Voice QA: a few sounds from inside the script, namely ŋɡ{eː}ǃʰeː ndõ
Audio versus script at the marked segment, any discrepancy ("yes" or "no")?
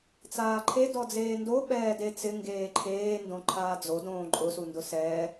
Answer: no